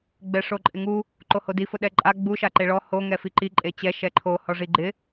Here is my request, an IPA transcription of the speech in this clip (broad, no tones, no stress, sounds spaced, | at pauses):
ɡ͡b ɛ ʂ o ǃʼ ɪ ŋ u | ǃ o h o d i f ʊ ɗ ɛ ǃʼ a ɡ͡b u ʃ a ǃ e ɭ ɔ h o ŋ ɛ f i ǃ i ǃʼ e t͡ɕ ɛ ʃ ɛ ǃʰ o h ɔ ʐ i ɡ͡ǃ ɪ